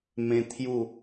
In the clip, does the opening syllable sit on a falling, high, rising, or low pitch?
high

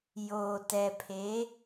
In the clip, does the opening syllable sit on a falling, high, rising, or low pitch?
low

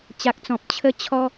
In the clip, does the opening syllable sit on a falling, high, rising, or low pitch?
low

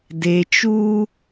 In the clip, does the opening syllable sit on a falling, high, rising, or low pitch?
low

